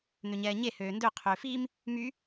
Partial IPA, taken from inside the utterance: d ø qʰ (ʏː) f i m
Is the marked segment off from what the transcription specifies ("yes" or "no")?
no